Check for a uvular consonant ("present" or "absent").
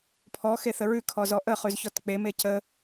present